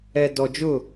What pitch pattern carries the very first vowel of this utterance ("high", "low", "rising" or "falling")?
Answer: low